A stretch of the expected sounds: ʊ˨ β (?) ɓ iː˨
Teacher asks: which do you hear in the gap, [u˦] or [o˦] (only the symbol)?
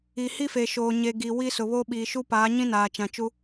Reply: o˦